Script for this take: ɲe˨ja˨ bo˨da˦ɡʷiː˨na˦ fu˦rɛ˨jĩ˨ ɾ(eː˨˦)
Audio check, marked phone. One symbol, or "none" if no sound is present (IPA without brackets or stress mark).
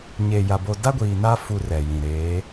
eː˨˦